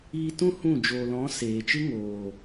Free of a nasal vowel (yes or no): no